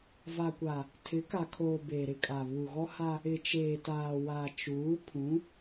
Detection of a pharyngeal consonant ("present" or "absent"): absent